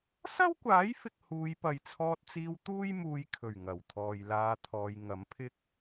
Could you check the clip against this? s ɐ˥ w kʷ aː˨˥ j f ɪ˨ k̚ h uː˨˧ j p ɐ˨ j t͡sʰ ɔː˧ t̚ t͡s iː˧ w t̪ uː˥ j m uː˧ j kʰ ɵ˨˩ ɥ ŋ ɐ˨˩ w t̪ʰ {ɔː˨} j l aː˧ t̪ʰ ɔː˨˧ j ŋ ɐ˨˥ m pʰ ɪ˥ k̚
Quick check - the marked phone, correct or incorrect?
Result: correct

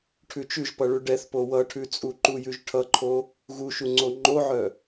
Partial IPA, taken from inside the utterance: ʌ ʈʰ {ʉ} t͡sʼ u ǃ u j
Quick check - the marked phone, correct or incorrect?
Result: correct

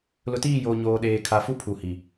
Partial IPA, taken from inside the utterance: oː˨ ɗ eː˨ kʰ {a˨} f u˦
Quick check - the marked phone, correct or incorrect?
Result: correct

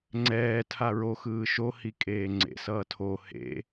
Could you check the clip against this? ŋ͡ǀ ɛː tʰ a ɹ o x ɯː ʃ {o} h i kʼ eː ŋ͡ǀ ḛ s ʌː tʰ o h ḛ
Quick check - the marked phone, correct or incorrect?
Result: correct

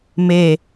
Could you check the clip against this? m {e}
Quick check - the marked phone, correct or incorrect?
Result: correct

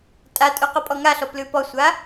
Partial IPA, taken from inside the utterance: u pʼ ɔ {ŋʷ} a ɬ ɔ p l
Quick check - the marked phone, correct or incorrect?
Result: incorrect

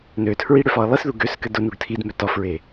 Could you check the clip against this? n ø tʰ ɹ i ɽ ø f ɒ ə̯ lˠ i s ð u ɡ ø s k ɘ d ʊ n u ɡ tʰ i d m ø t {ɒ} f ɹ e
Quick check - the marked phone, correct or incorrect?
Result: correct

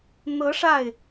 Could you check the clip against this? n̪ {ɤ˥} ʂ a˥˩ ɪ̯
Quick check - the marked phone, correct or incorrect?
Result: incorrect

